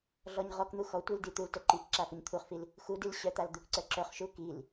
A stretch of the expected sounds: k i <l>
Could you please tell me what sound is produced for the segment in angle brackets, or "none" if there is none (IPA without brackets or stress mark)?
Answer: l